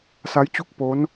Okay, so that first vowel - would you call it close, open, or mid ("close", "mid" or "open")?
open